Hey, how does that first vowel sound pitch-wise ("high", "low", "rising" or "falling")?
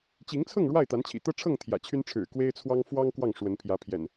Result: rising